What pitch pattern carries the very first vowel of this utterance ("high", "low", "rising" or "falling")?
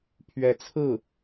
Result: rising